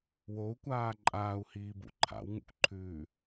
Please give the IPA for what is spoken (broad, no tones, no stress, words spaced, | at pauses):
wou̯kʷaː ǃʼaːu̯hiːbṵ ǃʰa̰wŋṵkʷǃʰʉː